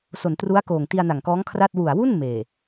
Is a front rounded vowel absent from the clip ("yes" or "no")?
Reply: yes